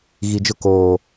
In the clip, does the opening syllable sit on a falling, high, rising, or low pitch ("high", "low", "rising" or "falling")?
low